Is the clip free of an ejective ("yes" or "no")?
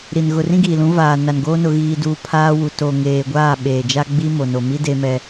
yes